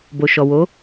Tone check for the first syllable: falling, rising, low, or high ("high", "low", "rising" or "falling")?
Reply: low